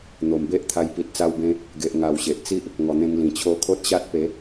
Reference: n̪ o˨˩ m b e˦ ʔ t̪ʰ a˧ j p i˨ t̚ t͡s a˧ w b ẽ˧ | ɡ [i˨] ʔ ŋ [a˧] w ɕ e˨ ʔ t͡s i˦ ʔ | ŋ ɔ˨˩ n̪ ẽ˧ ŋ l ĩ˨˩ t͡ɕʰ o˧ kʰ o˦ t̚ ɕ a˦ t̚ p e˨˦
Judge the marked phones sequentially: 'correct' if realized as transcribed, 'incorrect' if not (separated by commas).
incorrect, incorrect